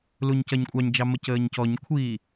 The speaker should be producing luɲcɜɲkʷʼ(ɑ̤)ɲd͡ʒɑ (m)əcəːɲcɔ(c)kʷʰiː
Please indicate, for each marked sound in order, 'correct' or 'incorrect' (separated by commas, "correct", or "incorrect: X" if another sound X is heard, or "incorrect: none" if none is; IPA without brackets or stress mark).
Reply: incorrect: ɑ, correct, incorrect: ɲ